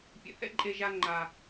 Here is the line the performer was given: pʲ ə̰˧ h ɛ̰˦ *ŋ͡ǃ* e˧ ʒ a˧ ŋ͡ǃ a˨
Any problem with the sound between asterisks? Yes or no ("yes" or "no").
yes